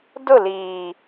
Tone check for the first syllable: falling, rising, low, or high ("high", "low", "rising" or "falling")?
falling